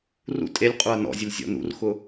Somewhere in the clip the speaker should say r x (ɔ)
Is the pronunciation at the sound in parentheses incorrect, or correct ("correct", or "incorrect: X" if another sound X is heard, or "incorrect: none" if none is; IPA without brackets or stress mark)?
incorrect: ʊ